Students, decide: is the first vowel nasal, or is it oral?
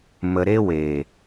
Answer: oral